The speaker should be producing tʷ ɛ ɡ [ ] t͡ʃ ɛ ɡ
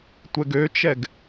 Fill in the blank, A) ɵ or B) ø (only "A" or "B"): B